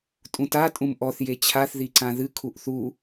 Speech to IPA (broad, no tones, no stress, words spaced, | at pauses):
tʼũta tʼũmʔɔθ jet͡ɕʰaθ ðiǀãðɨ kʰuʔθu